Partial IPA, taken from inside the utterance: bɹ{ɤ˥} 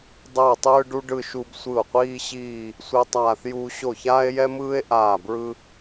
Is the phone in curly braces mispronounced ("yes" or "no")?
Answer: yes